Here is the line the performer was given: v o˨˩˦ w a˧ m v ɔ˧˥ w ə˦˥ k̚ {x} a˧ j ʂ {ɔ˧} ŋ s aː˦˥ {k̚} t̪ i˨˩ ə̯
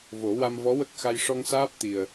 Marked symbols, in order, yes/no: yes, yes, no

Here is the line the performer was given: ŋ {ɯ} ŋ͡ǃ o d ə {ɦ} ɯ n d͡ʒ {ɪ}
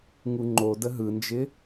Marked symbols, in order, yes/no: no, yes, yes

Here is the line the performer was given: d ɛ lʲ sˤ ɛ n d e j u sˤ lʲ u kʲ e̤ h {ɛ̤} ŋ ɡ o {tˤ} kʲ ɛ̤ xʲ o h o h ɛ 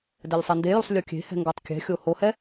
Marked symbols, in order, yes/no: yes, yes

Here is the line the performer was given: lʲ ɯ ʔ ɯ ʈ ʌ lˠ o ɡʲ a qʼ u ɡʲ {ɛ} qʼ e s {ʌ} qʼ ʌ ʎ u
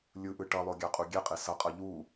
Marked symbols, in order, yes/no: yes, yes

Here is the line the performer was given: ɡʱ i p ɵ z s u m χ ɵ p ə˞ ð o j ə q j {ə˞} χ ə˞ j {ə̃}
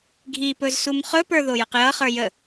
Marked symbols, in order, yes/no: no, no

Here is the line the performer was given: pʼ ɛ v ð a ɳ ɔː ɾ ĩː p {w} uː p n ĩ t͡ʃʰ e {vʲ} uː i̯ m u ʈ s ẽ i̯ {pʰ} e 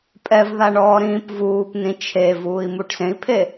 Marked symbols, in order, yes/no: no, no, yes

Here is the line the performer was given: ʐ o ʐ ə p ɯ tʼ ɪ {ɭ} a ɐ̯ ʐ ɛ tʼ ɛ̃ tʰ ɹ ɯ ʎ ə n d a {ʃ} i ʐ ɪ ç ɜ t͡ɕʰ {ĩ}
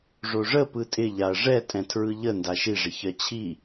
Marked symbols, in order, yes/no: no, yes, no

